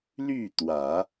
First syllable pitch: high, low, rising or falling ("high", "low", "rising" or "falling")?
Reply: falling